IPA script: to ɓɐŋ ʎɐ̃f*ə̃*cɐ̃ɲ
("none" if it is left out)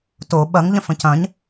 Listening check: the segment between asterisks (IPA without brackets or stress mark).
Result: ə̃